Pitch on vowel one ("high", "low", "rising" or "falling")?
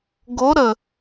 rising